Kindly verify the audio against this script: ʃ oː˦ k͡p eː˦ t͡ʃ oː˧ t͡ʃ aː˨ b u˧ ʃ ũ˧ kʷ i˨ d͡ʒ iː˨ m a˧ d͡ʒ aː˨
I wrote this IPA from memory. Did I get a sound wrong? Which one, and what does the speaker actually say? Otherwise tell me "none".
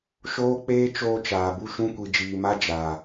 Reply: none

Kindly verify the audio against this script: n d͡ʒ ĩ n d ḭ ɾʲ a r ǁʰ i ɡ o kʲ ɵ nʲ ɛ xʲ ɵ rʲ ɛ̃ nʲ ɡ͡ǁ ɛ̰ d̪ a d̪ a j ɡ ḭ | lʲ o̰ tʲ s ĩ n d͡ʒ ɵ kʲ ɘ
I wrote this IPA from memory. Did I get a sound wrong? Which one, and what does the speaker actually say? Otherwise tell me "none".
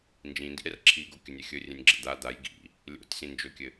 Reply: none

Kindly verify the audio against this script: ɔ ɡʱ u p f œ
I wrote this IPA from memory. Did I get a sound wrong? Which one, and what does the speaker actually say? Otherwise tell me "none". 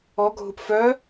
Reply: none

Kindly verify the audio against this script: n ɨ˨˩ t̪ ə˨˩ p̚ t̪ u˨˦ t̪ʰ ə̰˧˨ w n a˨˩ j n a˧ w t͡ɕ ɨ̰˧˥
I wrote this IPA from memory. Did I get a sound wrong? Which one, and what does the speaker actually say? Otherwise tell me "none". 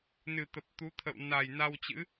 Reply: none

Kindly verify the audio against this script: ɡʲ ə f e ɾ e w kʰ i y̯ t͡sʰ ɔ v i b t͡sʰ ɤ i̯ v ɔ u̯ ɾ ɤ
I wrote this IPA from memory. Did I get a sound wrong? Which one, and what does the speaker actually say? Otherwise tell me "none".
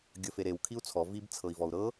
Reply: y̯ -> u̯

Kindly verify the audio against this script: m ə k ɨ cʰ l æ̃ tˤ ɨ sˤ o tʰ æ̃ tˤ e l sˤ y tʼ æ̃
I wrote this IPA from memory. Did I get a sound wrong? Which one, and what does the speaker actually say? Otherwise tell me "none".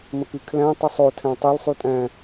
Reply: cʰ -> kʰ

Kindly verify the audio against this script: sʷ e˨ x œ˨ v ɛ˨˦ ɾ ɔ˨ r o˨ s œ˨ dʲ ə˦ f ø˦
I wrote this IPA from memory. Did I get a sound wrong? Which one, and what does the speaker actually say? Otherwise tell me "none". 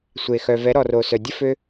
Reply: none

